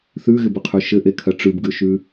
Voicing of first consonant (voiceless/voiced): voiceless